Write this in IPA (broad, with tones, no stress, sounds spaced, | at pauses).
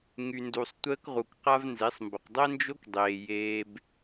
ŋ y˩ n d u˩ sˤ tʷ əː˧ k ʁ u˩ k q a˥ v n z e˩˥ sˤ m b ə˩ q dˤ ɛ˥ n d͡ʒ o˥ k dˤ eː˩ j eː˧ b